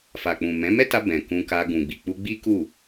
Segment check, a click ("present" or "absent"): absent